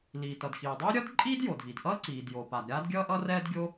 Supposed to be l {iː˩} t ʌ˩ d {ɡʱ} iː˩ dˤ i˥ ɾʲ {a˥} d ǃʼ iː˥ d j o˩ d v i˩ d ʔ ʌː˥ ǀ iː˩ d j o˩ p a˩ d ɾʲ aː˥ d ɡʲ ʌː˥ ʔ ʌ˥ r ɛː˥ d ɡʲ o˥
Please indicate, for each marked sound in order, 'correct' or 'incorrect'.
correct, incorrect: x, incorrect: ʌ˥

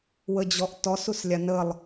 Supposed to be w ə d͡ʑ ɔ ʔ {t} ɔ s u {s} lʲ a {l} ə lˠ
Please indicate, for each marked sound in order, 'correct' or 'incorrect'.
correct, correct, incorrect: n

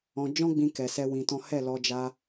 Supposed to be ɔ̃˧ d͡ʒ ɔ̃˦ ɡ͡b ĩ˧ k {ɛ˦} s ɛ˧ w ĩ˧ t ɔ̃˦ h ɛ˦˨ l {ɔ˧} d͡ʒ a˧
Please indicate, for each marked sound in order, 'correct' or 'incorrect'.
incorrect: ɛ˨, correct

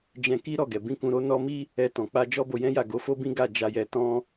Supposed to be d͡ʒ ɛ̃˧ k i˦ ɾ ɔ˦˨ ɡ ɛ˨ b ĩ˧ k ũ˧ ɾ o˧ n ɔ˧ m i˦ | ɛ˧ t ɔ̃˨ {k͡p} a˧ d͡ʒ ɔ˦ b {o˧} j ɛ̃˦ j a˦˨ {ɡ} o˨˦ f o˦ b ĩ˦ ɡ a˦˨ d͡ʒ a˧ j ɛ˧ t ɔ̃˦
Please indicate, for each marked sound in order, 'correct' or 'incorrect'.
correct, correct, correct

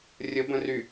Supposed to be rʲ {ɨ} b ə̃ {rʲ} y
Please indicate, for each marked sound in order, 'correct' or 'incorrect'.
incorrect: ə, incorrect: r

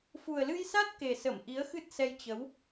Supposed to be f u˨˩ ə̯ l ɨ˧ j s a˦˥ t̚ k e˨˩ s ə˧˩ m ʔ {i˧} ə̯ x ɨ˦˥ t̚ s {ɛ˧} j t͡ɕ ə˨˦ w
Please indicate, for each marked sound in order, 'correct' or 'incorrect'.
incorrect: i˨˦, correct

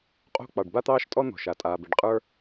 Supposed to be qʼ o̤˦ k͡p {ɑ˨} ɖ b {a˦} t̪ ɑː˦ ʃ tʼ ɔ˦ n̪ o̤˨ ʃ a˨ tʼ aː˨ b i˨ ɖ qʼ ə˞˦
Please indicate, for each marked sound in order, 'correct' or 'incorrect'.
correct, correct

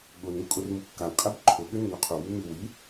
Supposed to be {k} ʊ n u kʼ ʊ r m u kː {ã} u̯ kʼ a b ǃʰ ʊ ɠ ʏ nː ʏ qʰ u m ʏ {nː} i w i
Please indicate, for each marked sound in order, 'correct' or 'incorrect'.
incorrect: ɠ, incorrect: a, incorrect: m

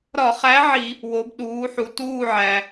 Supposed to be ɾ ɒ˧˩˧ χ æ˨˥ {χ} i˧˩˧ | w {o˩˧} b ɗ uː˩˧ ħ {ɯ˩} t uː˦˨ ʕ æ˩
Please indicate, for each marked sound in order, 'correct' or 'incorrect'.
incorrect: ʕ, correct, incorrect: u˩

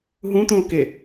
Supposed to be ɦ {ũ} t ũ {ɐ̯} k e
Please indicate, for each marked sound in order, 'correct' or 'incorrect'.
correct, incorrect: o̯

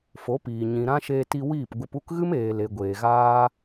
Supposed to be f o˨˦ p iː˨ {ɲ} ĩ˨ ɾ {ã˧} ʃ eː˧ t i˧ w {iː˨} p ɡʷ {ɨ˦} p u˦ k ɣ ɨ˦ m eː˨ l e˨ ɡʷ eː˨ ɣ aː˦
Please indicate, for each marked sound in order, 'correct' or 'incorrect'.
correct, correct, incorrect: iː˦˨, incorrect: ɨ˧

